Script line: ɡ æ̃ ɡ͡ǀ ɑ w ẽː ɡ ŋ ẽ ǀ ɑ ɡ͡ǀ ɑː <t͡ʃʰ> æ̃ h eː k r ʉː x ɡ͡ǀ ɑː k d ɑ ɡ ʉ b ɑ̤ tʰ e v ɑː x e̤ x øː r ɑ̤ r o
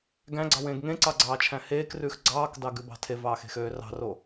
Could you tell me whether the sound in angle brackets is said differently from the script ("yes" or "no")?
no